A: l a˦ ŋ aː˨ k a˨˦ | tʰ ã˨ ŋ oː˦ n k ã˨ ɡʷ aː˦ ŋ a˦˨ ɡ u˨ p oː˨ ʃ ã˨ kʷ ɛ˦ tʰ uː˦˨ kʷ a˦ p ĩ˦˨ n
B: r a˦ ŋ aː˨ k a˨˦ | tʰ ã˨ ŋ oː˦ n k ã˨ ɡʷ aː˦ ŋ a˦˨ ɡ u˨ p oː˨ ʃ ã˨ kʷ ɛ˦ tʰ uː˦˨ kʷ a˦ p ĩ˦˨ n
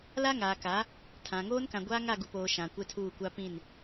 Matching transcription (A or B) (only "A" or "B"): A